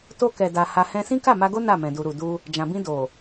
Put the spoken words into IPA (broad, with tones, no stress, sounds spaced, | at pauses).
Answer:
t o˧ k ɛ˨ d a˨ h a˧ h ɛ̃˦ s ĩ˦ k a˦˨ m a˧ ɡ o˦ n a˦˨ m ɛ̃˨ d u˨ ɾ u˨ d u˧ | d͡ʒ ã˨ b ĩ˧ d o˨